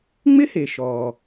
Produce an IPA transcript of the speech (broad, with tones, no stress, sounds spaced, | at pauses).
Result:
ŋ͡m ɪ˥ h e˩ ʃ ɔː˩